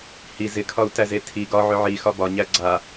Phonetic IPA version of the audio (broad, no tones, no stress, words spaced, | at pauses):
hi zɪkʰɒu̯tæze tʰi ɡɒ ʕʏʕixɒ bɒɲæ ɡ͡ǀa